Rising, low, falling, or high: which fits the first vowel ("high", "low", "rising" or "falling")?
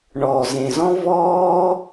low